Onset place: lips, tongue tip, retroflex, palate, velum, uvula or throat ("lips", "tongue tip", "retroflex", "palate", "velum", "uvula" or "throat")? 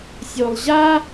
tongue tip